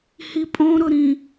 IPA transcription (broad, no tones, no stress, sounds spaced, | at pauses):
h i pʼ õ ɾ ʊ ɾ ĩ